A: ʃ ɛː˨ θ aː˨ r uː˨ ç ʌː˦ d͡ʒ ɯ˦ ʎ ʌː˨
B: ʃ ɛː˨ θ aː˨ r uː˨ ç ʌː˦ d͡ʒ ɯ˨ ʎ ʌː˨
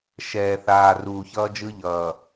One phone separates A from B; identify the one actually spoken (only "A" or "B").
A